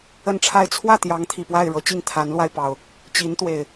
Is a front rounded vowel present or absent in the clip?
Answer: absent